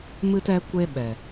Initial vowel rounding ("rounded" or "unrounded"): unrounded